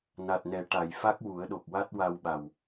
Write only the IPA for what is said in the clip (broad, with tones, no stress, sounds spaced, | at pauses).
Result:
n a˨˩ t̚ n ɛ˨˩˦ ʈ a˨˩˨ j f a˦˥ k̚ w u˨˩˦ ə̯ ɗ o˨˩ k̚ w a˦˥ t̚ w a˧ w ɓ a˨˩ w